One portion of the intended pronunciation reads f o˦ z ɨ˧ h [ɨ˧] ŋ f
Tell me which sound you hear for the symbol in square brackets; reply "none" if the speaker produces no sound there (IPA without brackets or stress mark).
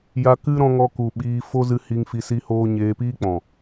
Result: i˧